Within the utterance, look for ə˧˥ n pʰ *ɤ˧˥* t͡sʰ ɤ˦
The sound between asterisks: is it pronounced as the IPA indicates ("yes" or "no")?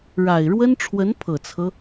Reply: no